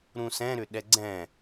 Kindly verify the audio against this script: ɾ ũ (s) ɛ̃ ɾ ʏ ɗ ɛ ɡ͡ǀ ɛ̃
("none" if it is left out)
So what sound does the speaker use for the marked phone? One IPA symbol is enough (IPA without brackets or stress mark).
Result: s